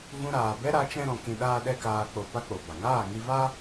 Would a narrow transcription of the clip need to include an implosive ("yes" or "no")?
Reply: yes